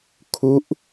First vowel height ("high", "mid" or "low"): high